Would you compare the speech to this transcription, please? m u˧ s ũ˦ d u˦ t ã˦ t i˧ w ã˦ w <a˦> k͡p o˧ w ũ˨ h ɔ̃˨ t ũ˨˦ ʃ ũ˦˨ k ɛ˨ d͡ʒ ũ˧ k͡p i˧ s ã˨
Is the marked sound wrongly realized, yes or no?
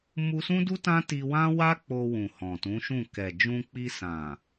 no